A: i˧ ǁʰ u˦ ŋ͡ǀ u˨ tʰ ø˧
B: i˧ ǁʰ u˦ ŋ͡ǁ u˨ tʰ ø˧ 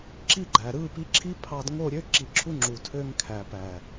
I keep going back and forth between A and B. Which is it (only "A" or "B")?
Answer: B